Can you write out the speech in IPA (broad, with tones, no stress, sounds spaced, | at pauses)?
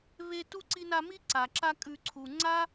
β e˦ t u˥ ǀ i˦ n a˦ m i˥ ǀ a˩ ǁ a˦ kʼ ʉ˨ ǀʰ u˩ ŋ͡ǀ a˥